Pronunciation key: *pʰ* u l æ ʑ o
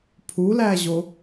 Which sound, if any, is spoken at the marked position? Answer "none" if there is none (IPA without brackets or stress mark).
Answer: pʰ